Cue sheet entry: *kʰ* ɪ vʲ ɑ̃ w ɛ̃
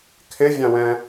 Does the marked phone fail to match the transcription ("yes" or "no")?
no